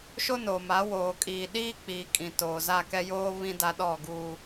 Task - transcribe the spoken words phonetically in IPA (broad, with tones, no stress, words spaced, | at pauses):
ʃo˦no˨ma˨˦ woː˨kʼiː˨ ɗiː˦k͡piː˨kʼĩ˨ toː˨za˦˨kɛ˦ joː˦ βĩ˦ da˦ɗɔ˦˨ɡuː˨